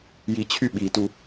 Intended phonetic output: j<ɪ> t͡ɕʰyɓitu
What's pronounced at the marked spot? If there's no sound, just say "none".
i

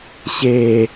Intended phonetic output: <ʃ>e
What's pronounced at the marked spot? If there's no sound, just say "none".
ɕ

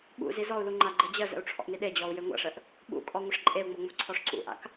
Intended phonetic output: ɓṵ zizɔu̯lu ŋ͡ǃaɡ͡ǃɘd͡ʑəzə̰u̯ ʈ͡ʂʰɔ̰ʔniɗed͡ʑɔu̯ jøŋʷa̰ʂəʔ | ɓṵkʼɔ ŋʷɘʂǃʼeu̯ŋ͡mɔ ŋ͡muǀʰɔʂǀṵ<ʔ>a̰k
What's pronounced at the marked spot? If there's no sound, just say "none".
ʔ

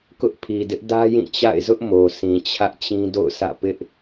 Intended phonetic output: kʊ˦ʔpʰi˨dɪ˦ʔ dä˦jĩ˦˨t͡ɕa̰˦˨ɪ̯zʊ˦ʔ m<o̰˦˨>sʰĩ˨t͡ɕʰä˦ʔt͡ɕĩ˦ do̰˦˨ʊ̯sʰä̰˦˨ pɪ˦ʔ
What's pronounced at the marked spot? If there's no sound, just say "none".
o˨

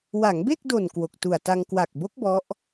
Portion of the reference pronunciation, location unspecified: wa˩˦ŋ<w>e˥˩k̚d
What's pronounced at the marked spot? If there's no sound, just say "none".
b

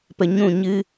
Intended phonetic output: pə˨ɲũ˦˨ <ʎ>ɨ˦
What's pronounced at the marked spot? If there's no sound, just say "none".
ɲ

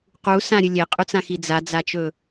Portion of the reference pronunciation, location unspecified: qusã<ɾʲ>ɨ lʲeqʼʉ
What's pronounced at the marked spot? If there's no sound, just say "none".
ɾʲ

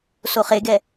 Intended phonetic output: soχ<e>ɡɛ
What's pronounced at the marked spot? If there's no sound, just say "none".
e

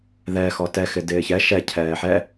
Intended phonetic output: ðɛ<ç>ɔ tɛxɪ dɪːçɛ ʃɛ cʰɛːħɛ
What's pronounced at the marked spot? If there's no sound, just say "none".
x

